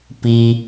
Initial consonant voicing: voiceless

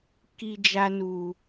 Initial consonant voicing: voiceless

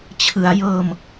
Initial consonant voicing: voiceless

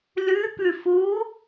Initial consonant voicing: voiced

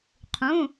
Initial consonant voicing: voiceless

